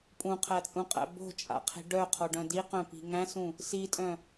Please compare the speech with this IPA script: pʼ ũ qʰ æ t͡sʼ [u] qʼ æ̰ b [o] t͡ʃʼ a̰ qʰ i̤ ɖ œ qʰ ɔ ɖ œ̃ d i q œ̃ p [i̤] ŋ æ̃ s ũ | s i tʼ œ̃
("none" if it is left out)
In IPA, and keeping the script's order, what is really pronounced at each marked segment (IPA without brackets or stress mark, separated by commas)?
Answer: ũ, o̤, i̤